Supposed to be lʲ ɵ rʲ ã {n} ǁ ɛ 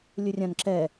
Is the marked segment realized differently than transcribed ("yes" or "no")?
no